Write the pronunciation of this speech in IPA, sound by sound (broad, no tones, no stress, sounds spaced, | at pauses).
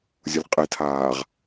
zʲ ʊ lʲ qʼ e tʰ aː ʁ